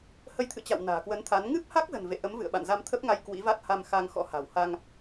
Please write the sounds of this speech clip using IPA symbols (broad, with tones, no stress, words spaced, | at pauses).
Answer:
hə˨˦jt̪ʰɨ̰˧˨t͡ɕa̰˧˨w na̤ː˨˩kwə˨˦nt̪ʰa˨˦n ŋɨ˦˥p̚ha˦˥k̚zə̤˨˩n vḛ˧˨ʔə˨˦mvɨ̰˧˨ə̯ ɓa̰˧˨nza˧mt̪ʰə˦˥p̚ŋa˧j kwḭ˧˥va˦˥t̚ ha˧mxa˧ŋ xɔ̰˧˥ha̤ː˨˩wha˧ŋ